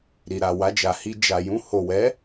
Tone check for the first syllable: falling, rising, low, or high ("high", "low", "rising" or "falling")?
low